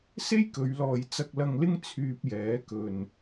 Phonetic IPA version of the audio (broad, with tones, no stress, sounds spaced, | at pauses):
s e˥ j k ɵ˨˧ ɥ l ɔː˨ j t͡s ɐ˧ k̚ l ɐ˧ ŋ l ɪ˥ ŋ t͡sʰ yː˧ p̚ j ɛː˨˥ k ɵ˨ n